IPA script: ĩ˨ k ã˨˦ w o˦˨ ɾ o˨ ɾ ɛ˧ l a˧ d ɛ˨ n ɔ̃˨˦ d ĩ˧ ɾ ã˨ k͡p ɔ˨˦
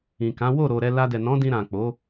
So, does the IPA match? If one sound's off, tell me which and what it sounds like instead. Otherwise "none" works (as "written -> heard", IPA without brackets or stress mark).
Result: ɔ˨˦ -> o˨˦